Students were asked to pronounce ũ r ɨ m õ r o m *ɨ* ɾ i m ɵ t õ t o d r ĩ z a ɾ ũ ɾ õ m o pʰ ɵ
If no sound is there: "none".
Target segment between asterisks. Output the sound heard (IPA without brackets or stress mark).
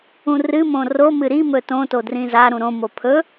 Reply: ɨ